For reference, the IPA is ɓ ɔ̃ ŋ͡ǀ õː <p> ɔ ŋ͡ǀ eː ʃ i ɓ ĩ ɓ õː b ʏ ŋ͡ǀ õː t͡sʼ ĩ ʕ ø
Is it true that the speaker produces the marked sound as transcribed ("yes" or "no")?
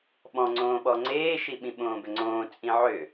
no